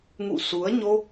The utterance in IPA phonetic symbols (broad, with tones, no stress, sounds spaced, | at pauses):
ŋ ṵ˧˨ s u˨˦ ə̯ ɲ o˧